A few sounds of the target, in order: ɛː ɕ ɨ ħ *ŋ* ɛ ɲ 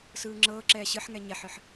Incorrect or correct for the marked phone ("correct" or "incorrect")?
correct